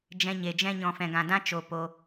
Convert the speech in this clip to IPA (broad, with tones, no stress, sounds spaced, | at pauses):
d͡ʒ ɛ̃˧ ɲ e˧ d͡ʒ ɛ̃˦ ɲ ɔ̃˦ f ɛ̃˦ ɡ ã˦ d ã˦ t͡ʃ o˧ p o˧